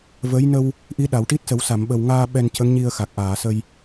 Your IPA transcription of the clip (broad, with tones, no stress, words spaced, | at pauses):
və˧˥j nə˧w | ʔi˧˥ɗa˨˩˨wʈi˦˥t̚sə˨˩˦w sa˨˩˨mɓə˨˩wŋaː˧ ɓɛ˧ncə˧˥ŋɲi˧ə̯ xa˨˩k̚ʔaː˨˩˨sə˧j